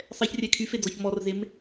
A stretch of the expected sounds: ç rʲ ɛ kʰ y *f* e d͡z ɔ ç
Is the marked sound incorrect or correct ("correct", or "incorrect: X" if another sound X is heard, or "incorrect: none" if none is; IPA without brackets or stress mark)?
correct